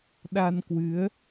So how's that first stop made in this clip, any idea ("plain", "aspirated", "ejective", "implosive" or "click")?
implosive